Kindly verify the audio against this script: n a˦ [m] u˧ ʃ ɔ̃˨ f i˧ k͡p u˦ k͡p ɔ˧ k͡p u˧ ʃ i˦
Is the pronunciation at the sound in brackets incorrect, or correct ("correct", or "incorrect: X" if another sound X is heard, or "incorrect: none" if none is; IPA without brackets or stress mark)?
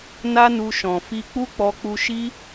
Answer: incorrect: n